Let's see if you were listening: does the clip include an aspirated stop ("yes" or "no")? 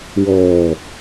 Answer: no